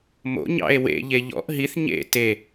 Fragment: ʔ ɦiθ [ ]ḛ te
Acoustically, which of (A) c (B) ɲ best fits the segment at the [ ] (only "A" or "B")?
B